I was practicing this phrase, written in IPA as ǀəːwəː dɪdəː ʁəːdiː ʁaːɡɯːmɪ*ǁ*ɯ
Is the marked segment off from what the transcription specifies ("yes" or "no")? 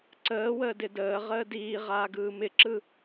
no